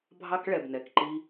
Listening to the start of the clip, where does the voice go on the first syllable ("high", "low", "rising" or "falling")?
high